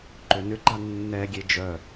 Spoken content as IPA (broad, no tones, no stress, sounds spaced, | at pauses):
ǃ ø n ʏ ɡ͡ǃ a nː ɛ ɡʲ e d͡ʒ œ